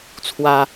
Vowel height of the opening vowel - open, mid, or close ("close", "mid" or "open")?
open